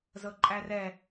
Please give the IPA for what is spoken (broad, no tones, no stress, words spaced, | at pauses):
zɤǃʼærɛ